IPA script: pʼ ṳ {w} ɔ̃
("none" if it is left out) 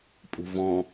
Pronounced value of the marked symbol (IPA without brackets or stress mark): v